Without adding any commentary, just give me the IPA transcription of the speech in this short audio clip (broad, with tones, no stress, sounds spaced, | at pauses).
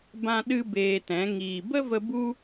b ã˦ ɗ ɨ˦ b eː˧ t ɛ̃˨˦ ŋ iː˨ b ə˦ v ə˧ b u˦